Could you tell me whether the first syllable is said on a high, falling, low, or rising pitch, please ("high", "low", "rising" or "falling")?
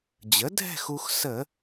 rising